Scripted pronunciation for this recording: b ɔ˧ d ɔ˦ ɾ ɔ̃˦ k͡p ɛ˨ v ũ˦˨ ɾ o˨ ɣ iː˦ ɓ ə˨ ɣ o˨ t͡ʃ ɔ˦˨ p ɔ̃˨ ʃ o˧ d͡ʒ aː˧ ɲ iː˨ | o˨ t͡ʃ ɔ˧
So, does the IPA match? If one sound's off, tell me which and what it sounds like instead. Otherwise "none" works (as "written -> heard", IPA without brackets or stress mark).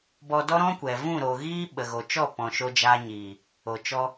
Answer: k͡p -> kʷ